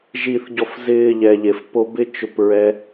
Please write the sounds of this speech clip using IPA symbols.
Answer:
ʒ i˧ θ ɟ ɔ˧ f z ɪː˧ ʎ ɛ˨ ʎ e˨ f p o˧ b ɪ˦ t͡ʃ ʊ˦˨ p ɹ ɛ˦

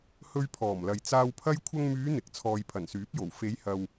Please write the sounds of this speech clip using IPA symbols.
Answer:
h ɵ˧ ɥ pʰ ɔː˨˩ m l ɐ˨ j t͡s aː˧ w pʰ ɐ˥ j kʷʰ ɐ˧ ŋ m yː˨˧ n̪ ɪ˨ k̚ t͡sʰ ɔː˨ j pʰ ɐ˨˩ n s yː˨˥ p̚ j o˨˩ w f e˨˧ j h ɐ˨ w

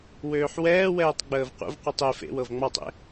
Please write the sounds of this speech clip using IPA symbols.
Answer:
w øː ħ w ɛː w ɛː tˤ ɡ͡b əː v qʷ ə̰ v qʷ ɯ tˤ e f ḛ w ɤ v ŋ͡m ɑ tˤ ḛ

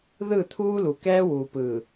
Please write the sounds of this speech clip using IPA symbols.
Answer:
ð ɯ˦˨ t̪ʰ uː˦ l u˨ k ɛː˦ w uː˨ p ɯː˨

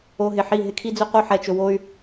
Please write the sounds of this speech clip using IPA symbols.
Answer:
o˧ ɦ ɪ˨ ħ i˦˨ ɦ ɪ˦ kʰ i˦ d͡z ɵ˦ q o˦ ħ ɛ˨ t͡ʃ ɵ˧ w o˦ y̯

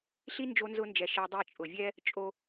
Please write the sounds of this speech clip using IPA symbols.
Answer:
ɬ i˦ n d͡ʒ o˧ n z ʊ˧ n d͡ʒ ɛ˨ ʃ ɛ˧ dˤ e˦˨ t͡ʃʼ ʊ˨ vʲ ɛ˦ | t͡ʃʼ o˦

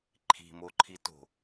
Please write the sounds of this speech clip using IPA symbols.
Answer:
ǃʰ i̤ m o ǃʰ i t o̤

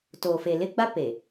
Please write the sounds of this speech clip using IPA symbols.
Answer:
t oː˨ f e˨ l ɪ˦ ɡ͡b a˦ p e˨

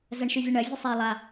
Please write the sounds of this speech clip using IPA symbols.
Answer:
z ɜ ɳ ʃ y vʲ ɜ ɳ ɜ vʲ ɯ sˤ ɛ lˠ a

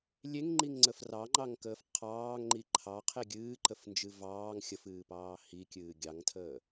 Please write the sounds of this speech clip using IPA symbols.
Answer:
lʲ e ŋ ŋ͡ǃ i ŋ ŋ͡ǀ ə f r ɑ ŋ͡ǃ ɑ ŋ k əː f qʰ ɑː ŋ ŋ͡ǃ i ǃʰ ɑ qʰ e ɡʲ ɨː ǃ ə f n d͡ʒ ɨ v ɑː ŋ xʲ ə f ɨː p ɑː h i kʲ ɨː ɡʲ ɑ ŋ tʰ əː

